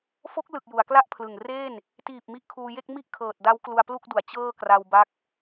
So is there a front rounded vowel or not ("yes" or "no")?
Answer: no